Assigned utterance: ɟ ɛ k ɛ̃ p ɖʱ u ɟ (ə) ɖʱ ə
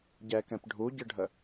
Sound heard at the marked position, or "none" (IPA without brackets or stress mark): ə